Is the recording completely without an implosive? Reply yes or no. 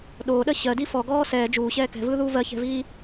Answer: no